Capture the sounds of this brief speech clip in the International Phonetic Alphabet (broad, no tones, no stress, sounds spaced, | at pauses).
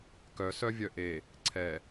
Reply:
k œ s œ vʲ œ ʔ e | ǀʰ ɛ